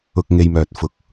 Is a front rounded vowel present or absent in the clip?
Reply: present